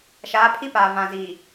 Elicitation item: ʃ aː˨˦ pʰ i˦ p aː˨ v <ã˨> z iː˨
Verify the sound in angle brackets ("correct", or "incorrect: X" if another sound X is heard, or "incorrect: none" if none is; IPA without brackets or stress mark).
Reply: correct